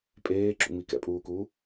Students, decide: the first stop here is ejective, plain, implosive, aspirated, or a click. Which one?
ejective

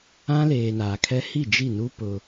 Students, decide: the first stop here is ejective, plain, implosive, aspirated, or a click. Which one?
aspirated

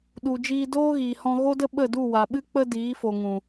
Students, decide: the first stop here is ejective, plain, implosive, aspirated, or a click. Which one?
implosive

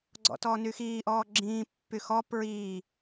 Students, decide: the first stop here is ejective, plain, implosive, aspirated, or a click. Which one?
click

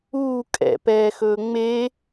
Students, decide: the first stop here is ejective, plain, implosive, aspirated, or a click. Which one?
ejective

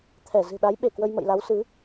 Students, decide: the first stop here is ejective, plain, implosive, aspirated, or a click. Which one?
aspirated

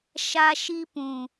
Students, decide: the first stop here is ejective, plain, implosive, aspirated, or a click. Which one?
plain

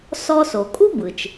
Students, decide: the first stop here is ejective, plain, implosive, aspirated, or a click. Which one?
ejective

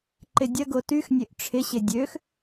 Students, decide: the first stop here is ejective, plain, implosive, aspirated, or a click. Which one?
click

